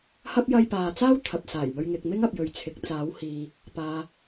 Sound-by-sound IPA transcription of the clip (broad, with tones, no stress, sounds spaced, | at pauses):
h ɐ˥ p̚ j ɐ˥ j p aː˧ t͡s aː˥ w t̪ʰ ɐ˨ p̚ s aː˨˩ j m ɵ˧ ɥ ŋ ɪ˨ k̚ m ɪ˥ ŋ ɐ˨ p̚ j ɵ˨ ɥ t͡sʰ ɪ˨ k̚ t͡s aː˨˥ w h iː˨ | p aː˨